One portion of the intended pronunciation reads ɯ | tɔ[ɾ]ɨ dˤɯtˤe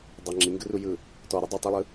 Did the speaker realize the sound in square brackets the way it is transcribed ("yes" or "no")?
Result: yes